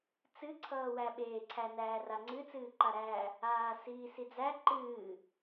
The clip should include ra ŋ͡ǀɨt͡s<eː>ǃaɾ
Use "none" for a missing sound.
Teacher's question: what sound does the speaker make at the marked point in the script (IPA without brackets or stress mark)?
ɨː